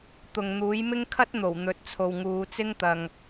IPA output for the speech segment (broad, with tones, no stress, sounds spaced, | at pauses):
t̪ ʊ˨ ŋ n̪ uː˨˥ j m ɪ˥ ŋ kʰ ɐ˥ t̚ n̪ o˨˩ w n̪ ɵ˨˥ t̚ t͡sʰ o˨ w ŋ uː˨˧ t͡s ɪ˥ ŋ t̪ ɐ˨ ŋ